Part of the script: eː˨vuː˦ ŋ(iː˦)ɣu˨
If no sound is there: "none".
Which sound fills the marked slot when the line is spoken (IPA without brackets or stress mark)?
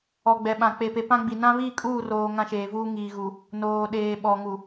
iː˨